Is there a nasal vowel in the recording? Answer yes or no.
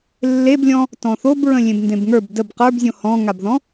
yes